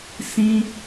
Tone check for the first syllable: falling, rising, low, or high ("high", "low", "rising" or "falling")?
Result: high